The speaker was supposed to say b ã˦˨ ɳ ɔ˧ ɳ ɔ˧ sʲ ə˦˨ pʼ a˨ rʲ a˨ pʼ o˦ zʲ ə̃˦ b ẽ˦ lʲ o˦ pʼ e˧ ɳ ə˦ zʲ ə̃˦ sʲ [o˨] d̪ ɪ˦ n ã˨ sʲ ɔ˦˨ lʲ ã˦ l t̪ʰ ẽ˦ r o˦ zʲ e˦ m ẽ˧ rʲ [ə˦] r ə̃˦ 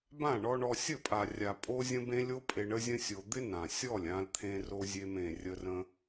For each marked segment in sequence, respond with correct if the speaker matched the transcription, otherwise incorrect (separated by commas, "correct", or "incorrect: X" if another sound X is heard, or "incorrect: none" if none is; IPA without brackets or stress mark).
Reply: incorrect: o˧, correct